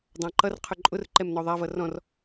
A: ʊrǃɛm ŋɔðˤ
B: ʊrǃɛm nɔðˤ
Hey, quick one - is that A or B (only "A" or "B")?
B